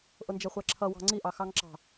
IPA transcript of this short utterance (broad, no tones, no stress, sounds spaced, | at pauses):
ʔ ʊ n d͡ʒ ɛ χʷ æ ǁʰ ʌ w ɑ̤ ŋ͡ǀ i ʔ ɑ x ɑ ŋ ǁ ɑ̤